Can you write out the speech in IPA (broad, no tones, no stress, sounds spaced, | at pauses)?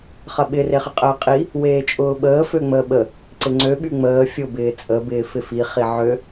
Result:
χ ɐ ɓ ɪ r e χ ɪ qʼ əː qʼ i | w eː t͡ʃʼ ʊː ɓ əː f ø ŋ͡m əː ɓ ə | ǀ ɪ ŋ͡ǀ ø ɓ y ŋ͡m əː fʲ ʊ b ɪː t͡sʼ əː b ɪː f ɪ f i χ i ʕ ø